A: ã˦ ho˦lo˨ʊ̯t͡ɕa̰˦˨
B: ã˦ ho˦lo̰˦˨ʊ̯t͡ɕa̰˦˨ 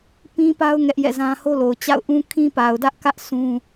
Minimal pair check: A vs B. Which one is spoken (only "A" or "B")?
A